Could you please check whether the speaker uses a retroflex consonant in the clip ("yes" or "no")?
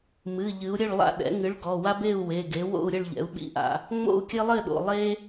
yes